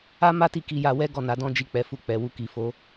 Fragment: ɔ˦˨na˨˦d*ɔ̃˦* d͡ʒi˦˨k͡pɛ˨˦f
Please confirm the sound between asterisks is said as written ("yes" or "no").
yes